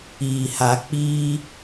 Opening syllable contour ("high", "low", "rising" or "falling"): low